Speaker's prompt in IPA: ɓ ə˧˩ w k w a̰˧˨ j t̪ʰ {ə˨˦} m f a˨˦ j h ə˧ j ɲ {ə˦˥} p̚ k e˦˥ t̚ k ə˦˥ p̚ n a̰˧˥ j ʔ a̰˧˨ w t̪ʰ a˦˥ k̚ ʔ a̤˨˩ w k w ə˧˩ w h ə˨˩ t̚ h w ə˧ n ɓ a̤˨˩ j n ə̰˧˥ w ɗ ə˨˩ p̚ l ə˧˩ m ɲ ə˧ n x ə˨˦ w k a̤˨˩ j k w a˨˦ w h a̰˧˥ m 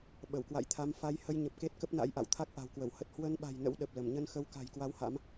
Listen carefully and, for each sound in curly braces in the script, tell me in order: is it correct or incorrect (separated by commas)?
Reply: incorrect, incorrect